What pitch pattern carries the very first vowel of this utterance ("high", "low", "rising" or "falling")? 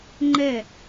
falling